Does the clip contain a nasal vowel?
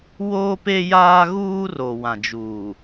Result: yes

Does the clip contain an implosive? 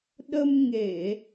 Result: yes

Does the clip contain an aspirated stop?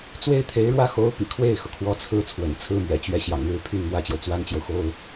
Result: yes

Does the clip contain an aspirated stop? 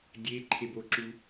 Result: yes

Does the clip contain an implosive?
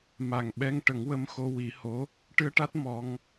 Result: yes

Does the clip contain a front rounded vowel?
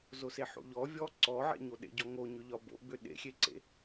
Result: yes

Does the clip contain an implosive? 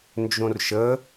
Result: no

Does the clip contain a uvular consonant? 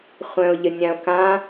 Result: yes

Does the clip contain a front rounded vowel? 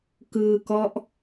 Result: no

